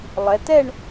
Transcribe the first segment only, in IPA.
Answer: lˠ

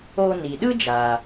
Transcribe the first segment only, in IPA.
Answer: o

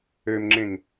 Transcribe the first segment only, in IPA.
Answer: ø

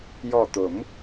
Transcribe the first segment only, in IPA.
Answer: j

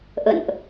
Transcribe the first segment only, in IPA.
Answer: ʔ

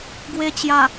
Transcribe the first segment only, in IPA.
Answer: ɡ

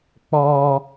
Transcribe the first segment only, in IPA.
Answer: k͡p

